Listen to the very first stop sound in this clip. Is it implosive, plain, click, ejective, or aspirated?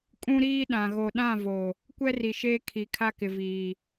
ejective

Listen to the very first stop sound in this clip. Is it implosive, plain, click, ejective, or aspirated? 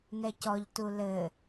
plain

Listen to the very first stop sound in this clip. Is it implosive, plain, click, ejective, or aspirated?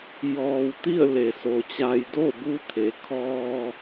plain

